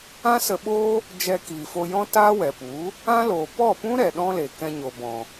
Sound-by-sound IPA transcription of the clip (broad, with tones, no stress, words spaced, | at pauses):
ã˦sə˧ɓoː˦ | d͡ʒɛ˧kiː˨fo˧jɔ̃˦ taː˦wɛ˨pu˨˦ | ã˦loː˨ pɔ˦˨pũ˦ ɾɛ˨ɗɔ̃˦le˨ kɛ̃˧ɲo˨bɔ̃˨